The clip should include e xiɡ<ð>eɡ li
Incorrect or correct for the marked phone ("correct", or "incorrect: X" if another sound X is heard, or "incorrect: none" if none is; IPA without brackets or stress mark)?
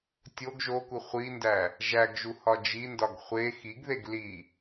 correct